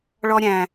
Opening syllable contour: high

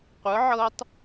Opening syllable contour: rising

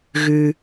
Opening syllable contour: low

